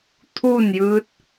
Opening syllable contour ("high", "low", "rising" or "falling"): falling